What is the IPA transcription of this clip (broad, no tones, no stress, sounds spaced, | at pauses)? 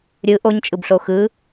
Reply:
ɾʲ ɯ ʔ o ɲ t͡ʃʼ ɯ b ɬ o x ɯ